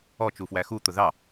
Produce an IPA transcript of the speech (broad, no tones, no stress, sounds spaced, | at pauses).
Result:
ɔ t͡ʃ u f w æ x u t̪ ʊ ð ɑ